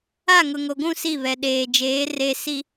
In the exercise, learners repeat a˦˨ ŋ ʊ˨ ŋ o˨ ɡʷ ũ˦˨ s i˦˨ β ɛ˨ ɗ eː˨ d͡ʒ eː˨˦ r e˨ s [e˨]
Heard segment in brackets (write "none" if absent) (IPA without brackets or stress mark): i˨